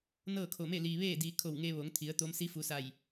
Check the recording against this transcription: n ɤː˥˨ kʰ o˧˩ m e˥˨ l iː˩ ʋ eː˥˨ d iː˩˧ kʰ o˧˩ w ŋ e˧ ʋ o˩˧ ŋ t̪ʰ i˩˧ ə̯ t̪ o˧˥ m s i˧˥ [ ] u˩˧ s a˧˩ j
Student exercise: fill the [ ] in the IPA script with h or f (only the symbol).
f